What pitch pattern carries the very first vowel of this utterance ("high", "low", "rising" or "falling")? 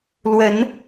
rising